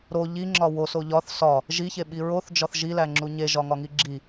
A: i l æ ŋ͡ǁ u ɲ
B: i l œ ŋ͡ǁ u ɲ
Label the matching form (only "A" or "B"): A